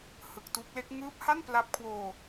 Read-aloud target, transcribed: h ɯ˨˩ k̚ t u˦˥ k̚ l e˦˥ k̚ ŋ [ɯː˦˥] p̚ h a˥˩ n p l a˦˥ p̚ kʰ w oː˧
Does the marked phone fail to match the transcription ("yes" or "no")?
no